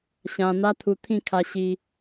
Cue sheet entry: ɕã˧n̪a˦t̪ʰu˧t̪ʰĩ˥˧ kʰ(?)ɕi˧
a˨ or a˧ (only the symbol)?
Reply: a˧